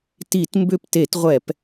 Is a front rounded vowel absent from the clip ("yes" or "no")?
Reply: no